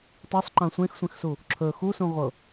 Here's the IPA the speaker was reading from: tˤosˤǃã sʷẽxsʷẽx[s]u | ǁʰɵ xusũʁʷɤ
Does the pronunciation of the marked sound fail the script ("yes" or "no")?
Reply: no